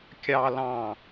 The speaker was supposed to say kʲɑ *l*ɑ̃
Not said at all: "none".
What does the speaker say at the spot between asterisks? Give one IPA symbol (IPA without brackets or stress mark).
l